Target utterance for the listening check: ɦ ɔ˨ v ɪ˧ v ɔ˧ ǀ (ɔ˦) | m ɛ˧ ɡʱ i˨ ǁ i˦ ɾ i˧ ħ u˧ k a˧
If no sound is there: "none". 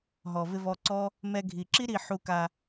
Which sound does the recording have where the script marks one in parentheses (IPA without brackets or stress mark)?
ɔ˦